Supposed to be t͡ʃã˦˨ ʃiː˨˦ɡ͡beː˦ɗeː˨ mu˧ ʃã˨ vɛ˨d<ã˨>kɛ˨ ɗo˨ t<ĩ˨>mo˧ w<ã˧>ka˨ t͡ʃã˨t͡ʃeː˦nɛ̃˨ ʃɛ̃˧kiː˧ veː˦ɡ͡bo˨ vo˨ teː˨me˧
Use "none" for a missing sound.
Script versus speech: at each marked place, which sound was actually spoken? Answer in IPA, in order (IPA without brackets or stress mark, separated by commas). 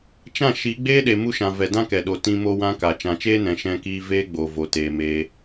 ã˦, ĩ˧, ã˦